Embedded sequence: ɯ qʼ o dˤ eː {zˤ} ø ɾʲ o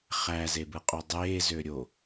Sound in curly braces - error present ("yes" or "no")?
yes